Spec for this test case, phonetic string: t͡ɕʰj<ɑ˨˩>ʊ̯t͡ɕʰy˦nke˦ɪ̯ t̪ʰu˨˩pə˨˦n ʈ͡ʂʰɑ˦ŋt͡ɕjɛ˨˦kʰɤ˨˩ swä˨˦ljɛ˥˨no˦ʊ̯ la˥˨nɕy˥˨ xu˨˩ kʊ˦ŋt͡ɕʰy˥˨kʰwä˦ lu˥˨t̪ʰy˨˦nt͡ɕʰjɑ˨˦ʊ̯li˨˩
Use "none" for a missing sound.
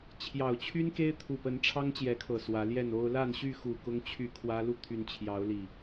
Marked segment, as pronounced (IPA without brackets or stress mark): ɑ˨˩